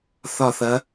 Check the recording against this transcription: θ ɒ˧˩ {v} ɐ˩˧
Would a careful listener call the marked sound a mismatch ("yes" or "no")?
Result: yes